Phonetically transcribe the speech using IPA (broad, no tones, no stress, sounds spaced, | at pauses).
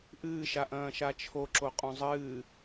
ʔ ɨː ʃ a ʔ ɐ̃ː ʃ a t͡ʃʰ o ǁ o qʼ õ zˤ ɨː